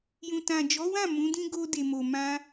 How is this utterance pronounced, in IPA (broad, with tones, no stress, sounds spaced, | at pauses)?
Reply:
j ũ˨ t ã˨ d͡ʒ ɔ˨˦ w ã˦˨ m ũ˨˦ d ĩ˦ ɡ o˧ d e˨ m o˨ m ã˧